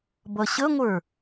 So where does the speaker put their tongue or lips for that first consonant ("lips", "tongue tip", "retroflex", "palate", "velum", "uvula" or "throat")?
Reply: lips